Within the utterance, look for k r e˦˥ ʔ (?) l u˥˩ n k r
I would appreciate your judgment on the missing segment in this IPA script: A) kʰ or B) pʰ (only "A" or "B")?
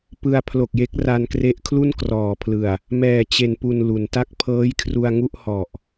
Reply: A